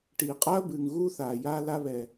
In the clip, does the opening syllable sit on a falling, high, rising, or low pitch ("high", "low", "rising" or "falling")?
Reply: low